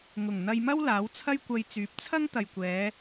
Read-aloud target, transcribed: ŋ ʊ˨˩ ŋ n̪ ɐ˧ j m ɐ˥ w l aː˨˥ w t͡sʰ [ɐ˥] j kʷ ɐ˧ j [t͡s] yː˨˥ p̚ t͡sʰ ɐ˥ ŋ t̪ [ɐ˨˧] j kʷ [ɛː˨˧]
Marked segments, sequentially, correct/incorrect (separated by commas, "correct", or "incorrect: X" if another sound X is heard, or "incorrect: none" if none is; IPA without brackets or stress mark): correct, correct, incorrect: ɐ˨, correct